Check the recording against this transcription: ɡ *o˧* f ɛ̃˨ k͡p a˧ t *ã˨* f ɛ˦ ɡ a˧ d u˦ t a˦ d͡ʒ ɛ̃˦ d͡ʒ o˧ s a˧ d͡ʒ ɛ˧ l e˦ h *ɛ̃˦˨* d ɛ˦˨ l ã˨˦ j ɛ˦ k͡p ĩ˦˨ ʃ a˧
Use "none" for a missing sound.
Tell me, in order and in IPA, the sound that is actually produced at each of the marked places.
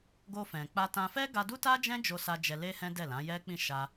o˧, ã˧, ɛ̃˦

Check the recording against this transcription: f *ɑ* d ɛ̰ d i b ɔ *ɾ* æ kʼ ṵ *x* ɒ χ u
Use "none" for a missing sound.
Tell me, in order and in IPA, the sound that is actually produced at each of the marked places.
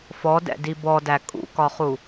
ɔ, d, k

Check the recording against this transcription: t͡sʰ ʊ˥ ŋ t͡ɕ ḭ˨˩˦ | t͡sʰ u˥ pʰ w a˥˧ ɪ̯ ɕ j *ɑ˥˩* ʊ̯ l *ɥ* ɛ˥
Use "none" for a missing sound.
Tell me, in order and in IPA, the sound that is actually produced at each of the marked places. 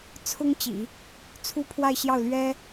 ɑ˥˩, ɥ

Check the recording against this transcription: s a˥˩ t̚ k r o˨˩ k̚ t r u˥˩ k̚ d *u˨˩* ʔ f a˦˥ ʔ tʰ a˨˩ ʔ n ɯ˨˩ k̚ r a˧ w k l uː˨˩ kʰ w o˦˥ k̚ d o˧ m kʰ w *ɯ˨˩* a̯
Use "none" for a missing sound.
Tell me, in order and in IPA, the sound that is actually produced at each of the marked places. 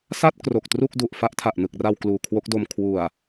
u˨˩, u˨˩

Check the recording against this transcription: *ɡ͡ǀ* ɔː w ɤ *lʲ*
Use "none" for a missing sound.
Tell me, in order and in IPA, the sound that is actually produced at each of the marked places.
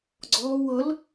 ɡ͡ǀ, l

